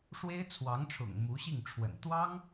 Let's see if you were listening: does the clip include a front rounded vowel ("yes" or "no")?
no